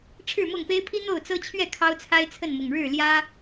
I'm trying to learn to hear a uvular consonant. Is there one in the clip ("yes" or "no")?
no